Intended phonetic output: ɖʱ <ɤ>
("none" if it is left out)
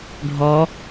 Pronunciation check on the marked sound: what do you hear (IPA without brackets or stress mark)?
ɔ